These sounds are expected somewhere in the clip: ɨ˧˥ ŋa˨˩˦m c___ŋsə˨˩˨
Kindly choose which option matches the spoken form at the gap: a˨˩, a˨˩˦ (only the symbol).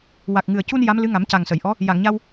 a˨˩